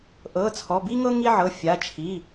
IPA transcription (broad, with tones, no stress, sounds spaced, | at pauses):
ʔ ɤ˩˧˩ t͡sʰ ɔ˩˧˩ b i˦ ŋ ɤ˦ ŋ i˦ ʕ ɤ˩˧˩ fʲ a˩˧˩ t͡ʃʰ i˩˧˩